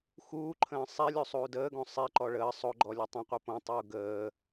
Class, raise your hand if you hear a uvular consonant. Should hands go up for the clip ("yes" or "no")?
yes